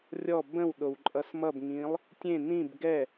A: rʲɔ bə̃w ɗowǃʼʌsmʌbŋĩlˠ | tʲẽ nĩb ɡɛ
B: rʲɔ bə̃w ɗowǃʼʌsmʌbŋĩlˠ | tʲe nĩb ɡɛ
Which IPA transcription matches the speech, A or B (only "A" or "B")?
A